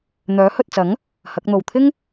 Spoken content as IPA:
n̪œː˨˥hɵ˨t̚t͡sɐ˨˥ŋ | hɐ˨˥k̚n̪o˨w t̪ʰɪ˥ŋ

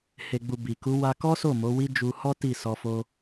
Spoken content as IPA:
he˨ɡ͡bu˨ bi˨ku˨˦ wa˧kɔ˦so˦˨ mo˨˦wi˦ d͡ʒu˧hɔ˦ ti˦˨sɔ˧fo˦

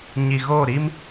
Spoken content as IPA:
ɲi˨ɣo˦˨ ɾi˦m

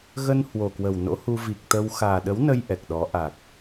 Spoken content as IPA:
ɣə˧n hwo˨˩kwə˨˩wno̰˧˥hu˧ vi˨˩k̚t̪ə˧w xaː˨˩ɗə˨˦wnə˧j ʔɛ˨˩k̚ɗɔ˨˦ ʔa˨˩k̚

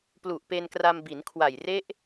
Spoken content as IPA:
plu˨˩ʔpe˧n kra˧mbi˩˦nkʰwa˨˩j re˦˥ʔ

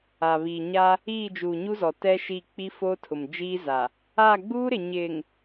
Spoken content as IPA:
a˨βi˨ɲa˦ | iː˦˨d͡ʒuː˨ɲu˦zɔ˨ tɛ˦ʃi˦˨ k͡pi˦fo˦tʰʊ˨md͡ʒiː˦ za˨ | a˦˨ɡ͡buː˦ɾɪ˨ ɲɪ˨ŋ

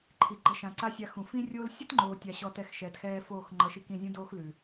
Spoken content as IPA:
ǃʰi˨ɡ͡ǃʌ˧ʃã˨ ǀa˦sʲa˧xũ˨ fĩ˦rʲoː˦l sʲʌ˦tŋ͡ǃoː˨tʲa˨ ɕɔ˧tɛ˧xʃɛː˨txɛː˧ foː˦˨xŋ͡ǃʌ˨˦ʃi˧kĩ˦˨ zʲũ˦doː˦xlʉ˨

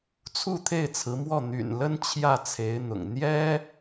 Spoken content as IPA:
t͡sʰu˥˧t̪ʰe˥˩ɪ̯t͡sʰɹ̩˧˥mwɔ˥˩ n̪y̰˨˩nlə˥n t͡ɕʰjä˥˩t͡sʰe˧˥ɪ̯n̪ʊ̰˨˩ŋ n̪jɛ˥

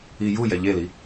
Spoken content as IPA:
ijujɛ ʎeli

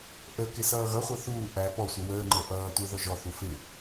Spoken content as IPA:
ʔə kɪsʌːɣʌχʷʌ θuː ʔæ pɔsʷʌ wəːŋ͡ǃə˞ ʔʌːtʷə˞ ðɔʒɔθu fɪ

